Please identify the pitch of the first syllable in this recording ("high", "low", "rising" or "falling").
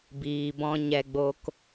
low